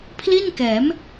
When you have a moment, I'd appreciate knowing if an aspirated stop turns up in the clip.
yes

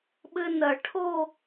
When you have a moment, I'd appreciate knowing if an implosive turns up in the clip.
yes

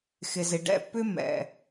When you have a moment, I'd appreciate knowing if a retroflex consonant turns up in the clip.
yes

